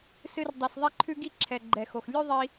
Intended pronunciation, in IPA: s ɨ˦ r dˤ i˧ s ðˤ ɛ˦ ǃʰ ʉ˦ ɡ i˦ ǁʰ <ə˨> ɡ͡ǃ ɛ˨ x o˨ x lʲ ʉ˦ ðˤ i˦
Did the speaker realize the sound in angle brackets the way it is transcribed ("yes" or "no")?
no